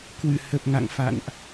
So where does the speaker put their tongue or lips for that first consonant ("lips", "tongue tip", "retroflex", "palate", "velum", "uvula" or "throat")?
velum